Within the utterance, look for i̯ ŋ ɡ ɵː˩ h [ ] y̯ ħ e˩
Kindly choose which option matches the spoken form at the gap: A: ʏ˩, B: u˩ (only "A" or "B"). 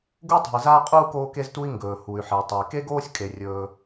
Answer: B